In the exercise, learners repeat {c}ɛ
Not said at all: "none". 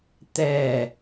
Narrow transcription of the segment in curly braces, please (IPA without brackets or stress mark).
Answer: t̪